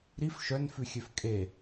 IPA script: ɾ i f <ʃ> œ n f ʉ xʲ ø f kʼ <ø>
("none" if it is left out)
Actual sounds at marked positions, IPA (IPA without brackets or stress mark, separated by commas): ʃ, e